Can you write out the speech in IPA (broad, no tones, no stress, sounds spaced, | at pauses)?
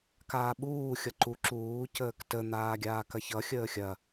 k aː ɓ uː xʲ ʌ ǃ u ǁ uː c əː k t ə n̪ aː ɡʲ aː k ɐ ç ʌ xʲ əː xʲ ɐ